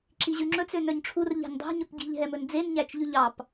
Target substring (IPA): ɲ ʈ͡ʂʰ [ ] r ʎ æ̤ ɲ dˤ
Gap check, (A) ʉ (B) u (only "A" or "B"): B